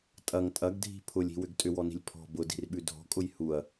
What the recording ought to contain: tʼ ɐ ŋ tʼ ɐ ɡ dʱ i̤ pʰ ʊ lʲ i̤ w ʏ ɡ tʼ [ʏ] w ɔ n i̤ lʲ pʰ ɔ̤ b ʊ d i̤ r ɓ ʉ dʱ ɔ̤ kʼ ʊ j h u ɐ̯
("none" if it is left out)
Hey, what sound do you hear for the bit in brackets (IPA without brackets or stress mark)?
ʏ